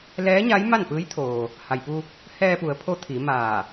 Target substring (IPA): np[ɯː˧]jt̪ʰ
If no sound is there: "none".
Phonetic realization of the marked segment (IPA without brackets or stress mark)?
ɯː˧˥